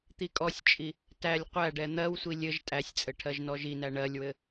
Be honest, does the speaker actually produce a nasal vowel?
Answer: no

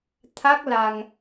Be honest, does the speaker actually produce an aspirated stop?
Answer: yes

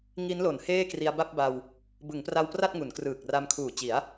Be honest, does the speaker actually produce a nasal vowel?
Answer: no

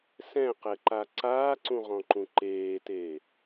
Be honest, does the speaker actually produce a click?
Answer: yes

